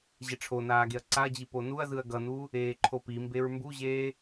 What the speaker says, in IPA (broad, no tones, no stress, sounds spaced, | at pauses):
ʑ ɛ ʈ͡ʂʰ o n aː ɡ e ɐ̯ ǀ a ɐ̯ d͡ʑ i p o n u ɐ̯ z ɯ ɐ̯ ɡ ʌ n u | eː ǃʰ o p i m b e ɹ m b u ʑ eː